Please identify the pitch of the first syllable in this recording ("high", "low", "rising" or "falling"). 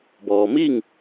low